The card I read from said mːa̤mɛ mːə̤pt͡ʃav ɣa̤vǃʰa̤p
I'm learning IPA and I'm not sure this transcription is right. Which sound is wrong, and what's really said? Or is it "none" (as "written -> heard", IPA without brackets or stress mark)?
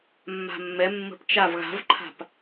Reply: m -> mː